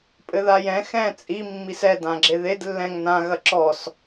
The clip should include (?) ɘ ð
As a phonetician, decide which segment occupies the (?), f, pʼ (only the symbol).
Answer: pʼ